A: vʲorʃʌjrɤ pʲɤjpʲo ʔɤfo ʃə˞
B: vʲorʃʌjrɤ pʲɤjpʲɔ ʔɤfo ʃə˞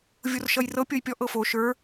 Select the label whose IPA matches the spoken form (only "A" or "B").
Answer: B